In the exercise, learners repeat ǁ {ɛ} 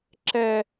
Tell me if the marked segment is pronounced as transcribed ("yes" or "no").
yes